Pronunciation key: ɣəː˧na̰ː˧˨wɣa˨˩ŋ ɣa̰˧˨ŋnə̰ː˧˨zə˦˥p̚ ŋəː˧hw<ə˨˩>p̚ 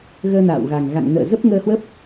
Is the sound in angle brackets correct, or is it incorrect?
incorrect